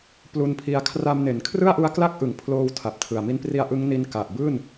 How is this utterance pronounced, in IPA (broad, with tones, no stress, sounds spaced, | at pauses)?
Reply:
p l u˧ n pʰ i˧ a̯ kʰ r a˧ m n e˩˦ n kʰ r ɯ˥˩ a̯ ʔ u˦˥ a̯ k l a˥˩ k̚ ʔ ɯ˨˩ ŋ pʰ l oː˧ w tʰ a˨˩ p̚ tʰ ɯ˨˩ a̯ m i˧ n p r i˧ a̯ ʔ ɯ˦˥ ŋ n i˦˥ n k a˨˩ ʔ b ɯː˥˩ n